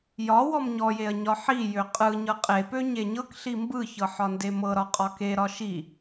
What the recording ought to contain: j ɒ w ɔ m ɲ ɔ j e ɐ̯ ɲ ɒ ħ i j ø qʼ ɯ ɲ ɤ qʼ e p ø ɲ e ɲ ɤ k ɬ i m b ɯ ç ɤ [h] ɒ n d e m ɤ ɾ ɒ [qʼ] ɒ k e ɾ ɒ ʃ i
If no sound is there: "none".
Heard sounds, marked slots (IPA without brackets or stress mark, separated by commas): ħ, qʼ